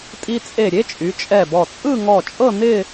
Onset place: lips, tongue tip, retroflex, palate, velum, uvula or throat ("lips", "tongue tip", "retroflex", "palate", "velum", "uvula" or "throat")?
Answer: tongue tip